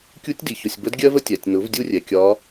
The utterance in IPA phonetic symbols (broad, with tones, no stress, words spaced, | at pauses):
kʲu˧˥tʲdi˩çʊ˩˧˩sʲbə˧˥d ɡʲɜ˥və˥tʲæ˩tʲnʊ˩˥v dʲu˥rʲɛ˩kʲɒ˧˥